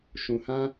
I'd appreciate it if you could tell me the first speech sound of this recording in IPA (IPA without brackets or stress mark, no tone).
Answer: ʃ